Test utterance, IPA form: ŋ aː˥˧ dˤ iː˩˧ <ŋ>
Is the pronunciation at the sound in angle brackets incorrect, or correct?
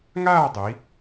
incorrect